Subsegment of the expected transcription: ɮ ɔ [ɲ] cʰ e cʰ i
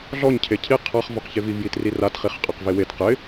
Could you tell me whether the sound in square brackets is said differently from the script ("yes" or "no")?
no